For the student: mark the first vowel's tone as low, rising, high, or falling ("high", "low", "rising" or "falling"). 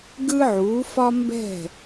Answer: high